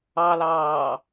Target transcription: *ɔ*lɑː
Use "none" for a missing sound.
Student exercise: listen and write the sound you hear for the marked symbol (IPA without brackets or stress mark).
ɑ